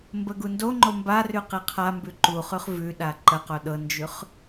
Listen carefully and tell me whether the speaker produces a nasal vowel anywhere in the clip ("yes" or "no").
no